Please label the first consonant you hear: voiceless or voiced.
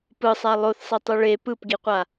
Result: voiceless